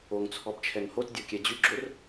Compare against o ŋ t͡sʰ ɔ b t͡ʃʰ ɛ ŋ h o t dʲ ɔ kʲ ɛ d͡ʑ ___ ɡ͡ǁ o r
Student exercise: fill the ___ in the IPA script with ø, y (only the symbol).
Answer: y